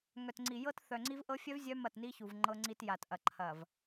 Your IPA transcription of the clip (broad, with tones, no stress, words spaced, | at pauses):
ŋœ˨tŋ͡ǀi˨ jɤ˦tθœ˨ ŋ͡ǀi˦v ʔɤ˦fʲœ˦v zʲœ˦ mɐ˦˨tni˦çu˨v ŋ͡ǃɤ˦ŋ͡ǀi˦t ja˨tʔɐ˨ǃʰɐ˨v